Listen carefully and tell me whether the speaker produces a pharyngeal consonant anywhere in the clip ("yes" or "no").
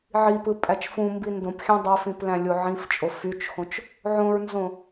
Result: yes